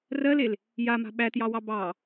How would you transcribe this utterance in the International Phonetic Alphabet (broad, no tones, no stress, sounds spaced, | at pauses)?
r ɜ l e l | j a m a̤ ɓ æ t j ɑ w ɑ b ɑ